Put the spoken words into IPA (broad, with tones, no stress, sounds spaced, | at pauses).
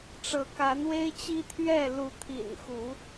ʈ͡ʂ ɤ˨˦ k a˨˦ n w e˦ ɪ̯ t͡ɕ i˦ t̪ʰ ɥ ɛ˥˨ l u˨˦ t̪ʰ ḭ˨˩ n x u˨˦